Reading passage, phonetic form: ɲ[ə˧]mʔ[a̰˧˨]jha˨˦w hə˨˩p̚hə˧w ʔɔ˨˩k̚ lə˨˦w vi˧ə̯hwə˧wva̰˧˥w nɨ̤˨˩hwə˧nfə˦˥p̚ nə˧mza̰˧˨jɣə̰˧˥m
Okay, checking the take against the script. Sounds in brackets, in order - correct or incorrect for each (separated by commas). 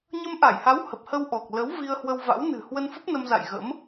correct, incorrect